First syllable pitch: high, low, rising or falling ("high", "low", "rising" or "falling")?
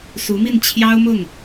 rising